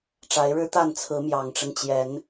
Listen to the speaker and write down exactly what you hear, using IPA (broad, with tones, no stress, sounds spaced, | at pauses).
ʈ͡ʂ a˨˦ ɪ̯ ɻ ɻ̩˦ t̪ a˥˨ n t͡sʰ ɹ̩˨˦ m j ɑ˨˩ ŋ ʈ͡ʂ ə˦ n t͡ɕ j ɛ˨˦ n